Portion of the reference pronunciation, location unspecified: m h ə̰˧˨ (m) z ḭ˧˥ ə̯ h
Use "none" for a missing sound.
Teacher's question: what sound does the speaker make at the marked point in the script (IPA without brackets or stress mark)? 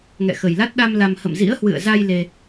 m